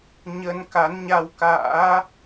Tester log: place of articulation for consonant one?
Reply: palatal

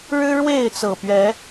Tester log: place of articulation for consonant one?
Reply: retroflex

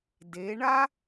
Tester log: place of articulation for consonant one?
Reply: alveolar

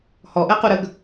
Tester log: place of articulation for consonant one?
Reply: glottal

